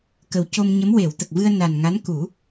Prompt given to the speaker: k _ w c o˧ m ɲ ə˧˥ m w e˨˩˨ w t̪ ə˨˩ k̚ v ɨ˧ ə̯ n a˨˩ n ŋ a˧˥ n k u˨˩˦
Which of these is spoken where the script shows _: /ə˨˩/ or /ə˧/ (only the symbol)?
ə˨˩